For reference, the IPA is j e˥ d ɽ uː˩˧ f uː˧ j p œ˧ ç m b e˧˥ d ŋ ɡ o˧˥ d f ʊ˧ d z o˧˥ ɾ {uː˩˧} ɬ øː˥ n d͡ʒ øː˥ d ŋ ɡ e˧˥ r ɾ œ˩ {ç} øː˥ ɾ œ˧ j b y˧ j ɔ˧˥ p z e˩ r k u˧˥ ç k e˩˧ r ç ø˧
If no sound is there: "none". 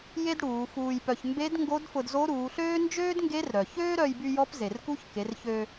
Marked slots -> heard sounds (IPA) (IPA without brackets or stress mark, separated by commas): uː˩˧, ç